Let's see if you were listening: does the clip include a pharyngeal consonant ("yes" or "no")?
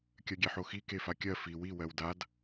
yes